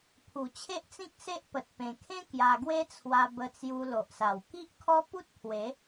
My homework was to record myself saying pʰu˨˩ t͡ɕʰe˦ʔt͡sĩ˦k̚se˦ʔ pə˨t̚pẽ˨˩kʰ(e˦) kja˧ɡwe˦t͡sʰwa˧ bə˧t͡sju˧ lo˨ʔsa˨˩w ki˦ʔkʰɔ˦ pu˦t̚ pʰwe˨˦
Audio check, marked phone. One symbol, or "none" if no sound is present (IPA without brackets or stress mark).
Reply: ẽ˦